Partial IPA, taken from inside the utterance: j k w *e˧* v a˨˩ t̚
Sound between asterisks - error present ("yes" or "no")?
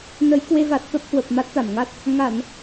no